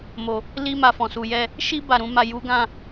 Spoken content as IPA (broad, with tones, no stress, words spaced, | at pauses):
mo˨ | li˦ ma˧fɔ̃˨su˨jɛ˧ | ʃi˦ ba˦˨ɾũ˨˦ma˦˨ ju˨˦ɡã˦˨